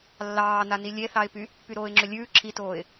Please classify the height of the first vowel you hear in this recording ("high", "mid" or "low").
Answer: low